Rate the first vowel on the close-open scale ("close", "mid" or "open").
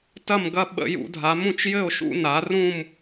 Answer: open